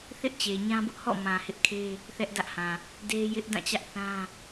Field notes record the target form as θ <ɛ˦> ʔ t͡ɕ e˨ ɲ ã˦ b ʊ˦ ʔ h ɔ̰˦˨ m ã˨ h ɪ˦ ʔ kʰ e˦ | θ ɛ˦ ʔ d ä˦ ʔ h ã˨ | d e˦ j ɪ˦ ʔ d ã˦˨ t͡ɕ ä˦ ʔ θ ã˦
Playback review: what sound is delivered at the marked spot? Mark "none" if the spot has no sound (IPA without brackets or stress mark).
ɪ˦